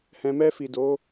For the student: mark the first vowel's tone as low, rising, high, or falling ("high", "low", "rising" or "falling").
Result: low